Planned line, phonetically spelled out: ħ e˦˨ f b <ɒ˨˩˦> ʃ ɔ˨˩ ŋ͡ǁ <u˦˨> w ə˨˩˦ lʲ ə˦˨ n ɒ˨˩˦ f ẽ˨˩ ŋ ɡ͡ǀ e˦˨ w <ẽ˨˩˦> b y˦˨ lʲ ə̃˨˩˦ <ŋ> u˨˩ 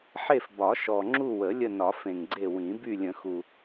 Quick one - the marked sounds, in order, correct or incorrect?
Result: correct, correct, incorrect: ĩ˨˩˦, incorrect: x

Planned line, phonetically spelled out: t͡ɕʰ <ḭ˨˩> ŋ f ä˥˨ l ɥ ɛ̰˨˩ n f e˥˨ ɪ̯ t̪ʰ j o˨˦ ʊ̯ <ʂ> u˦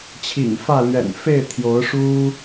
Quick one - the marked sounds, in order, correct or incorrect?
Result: correct, correct

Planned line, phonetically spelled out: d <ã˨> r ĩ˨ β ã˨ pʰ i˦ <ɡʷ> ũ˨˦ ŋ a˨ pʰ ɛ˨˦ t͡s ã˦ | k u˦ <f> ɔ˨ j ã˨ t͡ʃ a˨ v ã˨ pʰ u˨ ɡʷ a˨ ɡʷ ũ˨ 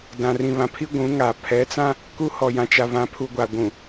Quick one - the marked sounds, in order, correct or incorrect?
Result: correct, correct, incorrect: h

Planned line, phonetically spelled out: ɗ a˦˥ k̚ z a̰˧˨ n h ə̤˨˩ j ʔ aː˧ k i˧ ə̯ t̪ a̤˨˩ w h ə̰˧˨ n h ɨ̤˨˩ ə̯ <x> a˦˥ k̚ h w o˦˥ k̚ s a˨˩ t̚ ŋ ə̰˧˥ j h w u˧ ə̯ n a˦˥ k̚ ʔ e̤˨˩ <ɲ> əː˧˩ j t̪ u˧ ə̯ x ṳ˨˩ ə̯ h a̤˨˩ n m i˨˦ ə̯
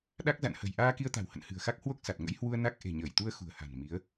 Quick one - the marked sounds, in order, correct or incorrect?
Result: correct, correct

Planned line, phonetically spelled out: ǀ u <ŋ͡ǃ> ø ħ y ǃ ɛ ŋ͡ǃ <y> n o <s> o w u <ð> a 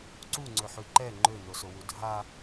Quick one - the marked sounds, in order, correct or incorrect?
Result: incorrect: ŋ͡ǀ, incorrect: ø, correct, incorrect: dʱ

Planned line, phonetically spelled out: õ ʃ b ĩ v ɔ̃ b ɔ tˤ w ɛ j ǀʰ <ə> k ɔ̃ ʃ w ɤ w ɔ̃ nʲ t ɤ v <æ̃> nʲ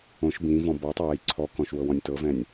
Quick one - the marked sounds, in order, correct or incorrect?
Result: incorrect: ɔ, incorrect: ɛ̃

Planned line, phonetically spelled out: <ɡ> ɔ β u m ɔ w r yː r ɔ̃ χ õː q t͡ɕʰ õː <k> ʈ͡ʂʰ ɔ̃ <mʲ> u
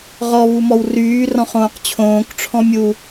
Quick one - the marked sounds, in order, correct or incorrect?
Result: incorrect: ʁ, correct, correct

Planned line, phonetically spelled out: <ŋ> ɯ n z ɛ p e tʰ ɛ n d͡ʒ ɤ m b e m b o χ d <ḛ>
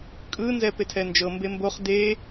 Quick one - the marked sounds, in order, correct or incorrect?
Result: incorrect: kʼ, incorrect: e

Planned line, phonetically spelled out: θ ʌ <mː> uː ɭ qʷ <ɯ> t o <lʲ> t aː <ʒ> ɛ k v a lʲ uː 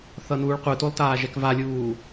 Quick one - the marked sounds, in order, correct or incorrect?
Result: incorrect: n, correct, incorrect: lˠ, correct

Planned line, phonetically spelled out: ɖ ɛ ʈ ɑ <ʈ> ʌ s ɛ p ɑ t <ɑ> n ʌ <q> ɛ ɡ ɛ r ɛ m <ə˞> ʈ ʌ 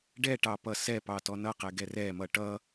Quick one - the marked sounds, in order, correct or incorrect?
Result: incorrect: p, incorrect: ɔ, correct, incorrect: ʌ

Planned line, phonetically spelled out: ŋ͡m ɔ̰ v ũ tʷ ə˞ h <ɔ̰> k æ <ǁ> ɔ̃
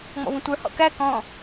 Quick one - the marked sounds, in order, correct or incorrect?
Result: correct, incorrect: k

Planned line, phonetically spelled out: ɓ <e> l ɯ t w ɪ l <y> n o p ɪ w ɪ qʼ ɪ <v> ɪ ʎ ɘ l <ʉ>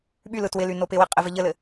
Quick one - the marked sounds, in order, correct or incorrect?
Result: incorrect: y, correct, correct, incorrect: ɘ

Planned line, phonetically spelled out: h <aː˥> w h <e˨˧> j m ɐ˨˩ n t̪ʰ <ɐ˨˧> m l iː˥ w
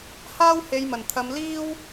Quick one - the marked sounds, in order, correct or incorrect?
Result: correct, correct, correct

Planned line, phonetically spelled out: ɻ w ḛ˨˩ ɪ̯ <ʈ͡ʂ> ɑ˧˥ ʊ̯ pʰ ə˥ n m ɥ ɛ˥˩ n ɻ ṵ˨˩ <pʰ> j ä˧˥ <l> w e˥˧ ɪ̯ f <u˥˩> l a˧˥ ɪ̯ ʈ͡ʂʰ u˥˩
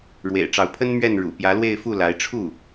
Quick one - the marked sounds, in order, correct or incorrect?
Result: correct, incorrect: p, correct, correct

